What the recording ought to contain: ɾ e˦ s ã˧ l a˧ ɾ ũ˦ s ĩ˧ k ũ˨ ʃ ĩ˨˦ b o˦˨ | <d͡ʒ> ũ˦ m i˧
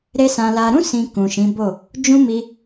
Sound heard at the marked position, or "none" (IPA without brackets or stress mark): d͡ʒ